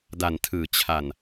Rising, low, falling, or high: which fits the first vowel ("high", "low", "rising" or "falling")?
low